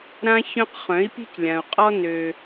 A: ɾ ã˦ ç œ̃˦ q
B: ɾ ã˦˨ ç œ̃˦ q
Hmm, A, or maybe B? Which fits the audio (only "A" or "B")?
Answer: A